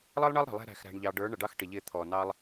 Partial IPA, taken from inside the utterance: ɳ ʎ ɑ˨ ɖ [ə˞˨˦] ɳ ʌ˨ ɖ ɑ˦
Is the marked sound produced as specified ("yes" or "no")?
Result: yes